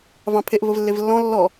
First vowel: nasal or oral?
nasal